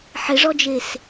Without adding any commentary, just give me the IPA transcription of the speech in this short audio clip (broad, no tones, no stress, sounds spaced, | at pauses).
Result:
ħ ɪ ʐ ɔ d͡ʒ e s